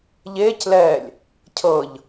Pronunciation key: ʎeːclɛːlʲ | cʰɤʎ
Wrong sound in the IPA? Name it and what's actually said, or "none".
none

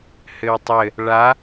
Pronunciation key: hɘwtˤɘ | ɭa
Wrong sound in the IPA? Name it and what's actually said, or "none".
none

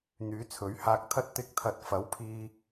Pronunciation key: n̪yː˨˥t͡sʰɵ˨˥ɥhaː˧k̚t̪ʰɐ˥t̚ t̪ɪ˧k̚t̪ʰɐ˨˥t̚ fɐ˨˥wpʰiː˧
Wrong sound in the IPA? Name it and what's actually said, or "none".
none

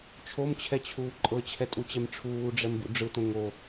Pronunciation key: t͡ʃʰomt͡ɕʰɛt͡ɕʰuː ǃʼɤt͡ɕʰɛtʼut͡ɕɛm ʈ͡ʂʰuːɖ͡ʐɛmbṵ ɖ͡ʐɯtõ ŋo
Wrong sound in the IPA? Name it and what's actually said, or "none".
none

